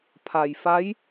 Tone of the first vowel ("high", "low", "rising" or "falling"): low